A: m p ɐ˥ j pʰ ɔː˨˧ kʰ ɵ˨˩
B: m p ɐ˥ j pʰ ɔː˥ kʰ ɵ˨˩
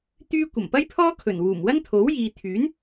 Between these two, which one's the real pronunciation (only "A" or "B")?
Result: B